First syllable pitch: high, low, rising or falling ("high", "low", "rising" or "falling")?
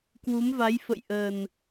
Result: rising